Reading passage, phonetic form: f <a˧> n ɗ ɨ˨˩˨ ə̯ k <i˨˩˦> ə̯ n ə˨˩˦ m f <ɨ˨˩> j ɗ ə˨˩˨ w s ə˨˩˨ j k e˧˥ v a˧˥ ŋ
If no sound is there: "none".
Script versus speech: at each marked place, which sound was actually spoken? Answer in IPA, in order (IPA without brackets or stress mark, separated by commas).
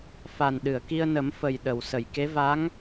a˨˩, i˧, ə˨˩